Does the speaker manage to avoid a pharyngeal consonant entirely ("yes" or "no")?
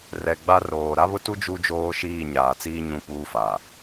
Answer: yes